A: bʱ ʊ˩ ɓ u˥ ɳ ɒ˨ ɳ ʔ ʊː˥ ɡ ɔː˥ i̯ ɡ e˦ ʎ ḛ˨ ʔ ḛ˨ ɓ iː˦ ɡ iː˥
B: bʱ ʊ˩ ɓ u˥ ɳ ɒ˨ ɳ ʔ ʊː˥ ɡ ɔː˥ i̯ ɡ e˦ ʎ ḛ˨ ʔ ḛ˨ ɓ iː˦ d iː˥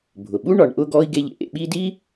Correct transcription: B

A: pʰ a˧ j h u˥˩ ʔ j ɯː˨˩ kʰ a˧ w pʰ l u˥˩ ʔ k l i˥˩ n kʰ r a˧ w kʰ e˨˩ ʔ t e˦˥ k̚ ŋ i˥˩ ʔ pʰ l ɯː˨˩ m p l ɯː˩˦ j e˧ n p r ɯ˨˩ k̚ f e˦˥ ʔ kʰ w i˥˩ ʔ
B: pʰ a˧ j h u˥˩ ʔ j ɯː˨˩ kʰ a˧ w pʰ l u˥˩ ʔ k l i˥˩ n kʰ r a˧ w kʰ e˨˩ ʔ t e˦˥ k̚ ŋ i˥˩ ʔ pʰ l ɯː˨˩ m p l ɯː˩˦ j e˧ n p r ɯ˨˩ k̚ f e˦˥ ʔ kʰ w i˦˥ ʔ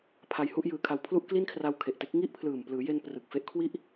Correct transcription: A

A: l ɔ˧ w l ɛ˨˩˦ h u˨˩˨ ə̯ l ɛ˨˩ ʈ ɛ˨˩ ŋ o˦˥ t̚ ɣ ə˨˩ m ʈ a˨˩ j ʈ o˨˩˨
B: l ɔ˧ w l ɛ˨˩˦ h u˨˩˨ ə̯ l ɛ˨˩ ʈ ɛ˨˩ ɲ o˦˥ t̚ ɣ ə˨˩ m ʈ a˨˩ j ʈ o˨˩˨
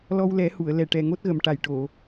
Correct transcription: A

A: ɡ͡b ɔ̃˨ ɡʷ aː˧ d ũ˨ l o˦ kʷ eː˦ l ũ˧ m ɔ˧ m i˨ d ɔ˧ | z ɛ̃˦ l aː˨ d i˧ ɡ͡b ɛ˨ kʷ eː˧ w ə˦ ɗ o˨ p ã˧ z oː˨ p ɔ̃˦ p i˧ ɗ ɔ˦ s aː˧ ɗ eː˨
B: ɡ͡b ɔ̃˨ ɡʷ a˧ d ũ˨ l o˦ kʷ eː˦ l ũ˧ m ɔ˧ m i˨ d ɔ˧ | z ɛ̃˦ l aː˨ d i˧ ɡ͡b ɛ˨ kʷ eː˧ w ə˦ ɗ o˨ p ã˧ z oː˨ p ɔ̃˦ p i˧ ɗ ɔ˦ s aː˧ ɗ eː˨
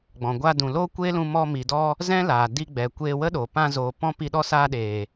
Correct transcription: B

